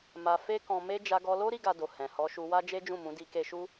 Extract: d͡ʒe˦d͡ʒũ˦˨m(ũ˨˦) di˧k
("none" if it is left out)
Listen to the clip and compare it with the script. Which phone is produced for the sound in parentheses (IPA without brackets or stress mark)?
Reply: ũ˨˦